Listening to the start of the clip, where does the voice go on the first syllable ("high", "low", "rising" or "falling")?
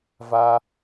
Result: high